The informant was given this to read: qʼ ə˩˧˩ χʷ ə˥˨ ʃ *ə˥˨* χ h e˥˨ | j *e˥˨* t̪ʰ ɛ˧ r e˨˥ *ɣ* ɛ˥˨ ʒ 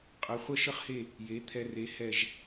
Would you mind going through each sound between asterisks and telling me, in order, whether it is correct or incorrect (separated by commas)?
incorrect, incorrect, incorrect